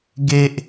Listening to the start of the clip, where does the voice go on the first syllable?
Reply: high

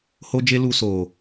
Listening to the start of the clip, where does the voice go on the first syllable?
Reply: high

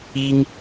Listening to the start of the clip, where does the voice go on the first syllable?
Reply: high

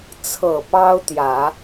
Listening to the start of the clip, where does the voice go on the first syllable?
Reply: low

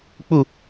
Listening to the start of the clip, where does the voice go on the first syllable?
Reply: falling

